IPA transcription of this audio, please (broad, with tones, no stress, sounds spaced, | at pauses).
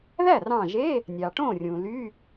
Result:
ð æ˥˩ r ɑ̃˧˩ ʒ e˧˥˧ | nʲ ɑ˩ ʈ õ˥˩ rʲ ũ˩ l y˧˥˧